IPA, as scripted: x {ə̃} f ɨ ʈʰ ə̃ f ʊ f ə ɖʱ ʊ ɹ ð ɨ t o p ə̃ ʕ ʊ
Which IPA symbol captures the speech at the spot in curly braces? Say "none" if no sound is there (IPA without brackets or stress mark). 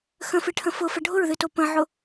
ə̃